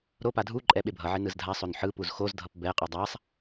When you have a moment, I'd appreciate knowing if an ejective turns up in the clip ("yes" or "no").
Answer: yes